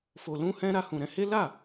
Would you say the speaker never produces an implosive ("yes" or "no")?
yes